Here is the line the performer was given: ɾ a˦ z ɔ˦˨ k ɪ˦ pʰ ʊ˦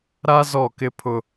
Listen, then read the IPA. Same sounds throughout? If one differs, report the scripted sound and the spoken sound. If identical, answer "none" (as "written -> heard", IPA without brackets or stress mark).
none